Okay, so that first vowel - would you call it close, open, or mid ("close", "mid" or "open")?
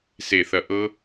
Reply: mid